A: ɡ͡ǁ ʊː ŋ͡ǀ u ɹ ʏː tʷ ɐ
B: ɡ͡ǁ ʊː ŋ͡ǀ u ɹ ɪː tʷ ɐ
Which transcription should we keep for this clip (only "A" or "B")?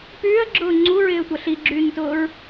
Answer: B